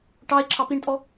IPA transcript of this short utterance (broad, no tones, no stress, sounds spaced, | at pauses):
ʈ ɑ e̯ ǁʰ ɑ p i ɳ tʼ ɔ